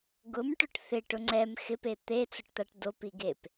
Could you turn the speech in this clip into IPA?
ɡ ʊ m ʈ ʊ ʈ θ ɪ ʈ ʊ ŋ͡ǀ ɛ m x ɪ p e t̪ e t͡s ʊ ʈ t̪ a ʈ d o p i ɡ e p

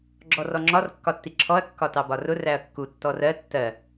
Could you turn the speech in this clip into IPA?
ɡ͡ǁ ɔ r ɔ ŋ͡ǁ ɒ r kː ɒ tː i ǁʰ ɔ ɐ̯ kː ɒ t ɑ b ɒ r ʊ r æ ɐ̯ kː u tː ɔ r ɜ tː ɜ

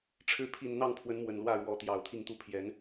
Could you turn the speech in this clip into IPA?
ʈ͡ʂʰ ɻ̩˨˦ pʰ i˨˩ n n̪ ɑ˥˨ ŋ pʰ w ə˨˦ n m w ə˨˩ n l w ä˥˨ ɻ w ɔ˨˦ t̪ j ɑ˨˩ ʊ̯ t̪ʰ i˥˨ ŋ t̪ u˥˨ pʰ j ɛ˨˦ n

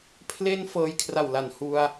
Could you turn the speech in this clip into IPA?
pʰ l e˥˩ n f ɤː˧ j kʰ r a˨˩ w l a˨˩ n h u˧ a̯

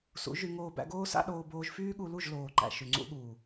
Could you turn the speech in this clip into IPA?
s ṵ˨˦ ʒ y˧ ŋ oː˧ b æ̰˧ ɡ oː˦ s a̰˦ ɗ oː˧ b oː˧ ʒ f yː˦ ɠ u˧ l u˦˨ ʒ l oː˨ ǃ æ̰˨ ʃ y˨ ŋ͡ǀ ṵ˧ ɠ uː˨

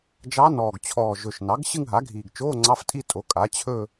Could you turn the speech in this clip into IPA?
d͡ʒ ɑ˧˥ n ɔː˨˩ ɡ t͡ɕʰ ɔː˨˩ ʒ ɵ˨˩ ʃ n ɑ˩˥ ɡ ɕ ɨ˥˧ ŋ ɦ a˩˥ ɡʱ iː˨˩ ɡ t͡ʃ oː˧˥˧ ŋ͡ǀ ɑ˧˥˧ f tʼ i˥˧ tʼ o˩˥ kʼ a˩˥ t͡ɕʰ ɵ˥˧

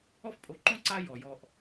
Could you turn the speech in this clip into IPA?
ɔ˦ f pʼ o˨ ǃ õ˥ ǀ a˦ j ɔ˩ j ɔ˨ ʔ

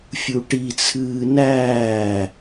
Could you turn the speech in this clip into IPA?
fʲ u ʈ i t͡sʰ ɨː n æː

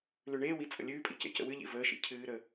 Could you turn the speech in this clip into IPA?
l ʉ ɳ eː w i t͡sʼ ə̰ lʲ ʉː pʼ ḭ c ḛ c ə̰ w ɨ ʎ ḭ v əː ʃ ḭ cʰ ɨː ɾ ə

